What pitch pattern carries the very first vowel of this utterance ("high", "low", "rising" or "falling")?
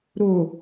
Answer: low